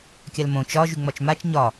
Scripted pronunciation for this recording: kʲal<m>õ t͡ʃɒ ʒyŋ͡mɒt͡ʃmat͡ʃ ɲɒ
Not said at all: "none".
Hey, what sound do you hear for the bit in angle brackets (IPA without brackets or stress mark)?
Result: m